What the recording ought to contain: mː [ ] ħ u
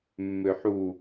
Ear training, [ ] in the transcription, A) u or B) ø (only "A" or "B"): B